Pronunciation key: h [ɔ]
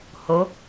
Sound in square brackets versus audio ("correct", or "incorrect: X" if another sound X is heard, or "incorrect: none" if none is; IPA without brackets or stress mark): incorrect: o